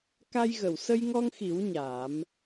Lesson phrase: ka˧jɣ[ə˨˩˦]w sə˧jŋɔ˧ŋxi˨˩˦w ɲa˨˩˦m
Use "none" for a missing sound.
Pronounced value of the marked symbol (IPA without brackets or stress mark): ə˨˩˨